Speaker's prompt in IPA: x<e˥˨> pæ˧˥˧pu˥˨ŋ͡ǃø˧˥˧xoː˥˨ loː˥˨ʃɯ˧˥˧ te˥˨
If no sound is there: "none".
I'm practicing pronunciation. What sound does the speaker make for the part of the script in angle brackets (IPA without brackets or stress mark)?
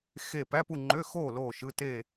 e˥˨